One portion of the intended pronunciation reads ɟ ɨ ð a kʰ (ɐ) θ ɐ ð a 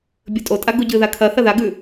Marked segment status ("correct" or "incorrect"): correct